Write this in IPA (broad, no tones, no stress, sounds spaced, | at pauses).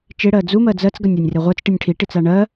t͡ʃ e ɽ ɜ d͡z u m ɜ d͡z ɜ t͡s ɡ ɐ nʲ a nʲ r e ʁʷ œ t͡s ʈ i nʲ ʈʰ i ʈ i t͡s a ɳ ɜ